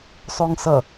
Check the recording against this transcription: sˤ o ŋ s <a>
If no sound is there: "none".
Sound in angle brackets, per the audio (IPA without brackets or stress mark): ʌ